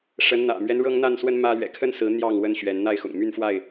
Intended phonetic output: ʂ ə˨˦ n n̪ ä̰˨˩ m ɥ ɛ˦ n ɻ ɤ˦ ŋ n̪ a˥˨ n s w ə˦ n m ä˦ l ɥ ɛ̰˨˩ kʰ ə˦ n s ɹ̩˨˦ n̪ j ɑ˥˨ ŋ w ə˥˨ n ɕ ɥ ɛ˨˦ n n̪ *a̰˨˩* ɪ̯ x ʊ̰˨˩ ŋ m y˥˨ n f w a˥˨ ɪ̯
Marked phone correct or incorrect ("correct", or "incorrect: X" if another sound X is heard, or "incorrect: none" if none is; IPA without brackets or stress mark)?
incorrect: a˥˨